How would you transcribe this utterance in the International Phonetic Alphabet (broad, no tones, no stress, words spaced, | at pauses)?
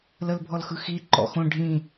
ləlbʱɔlxɯxi ǃɔ̰xõ ɖʱĩ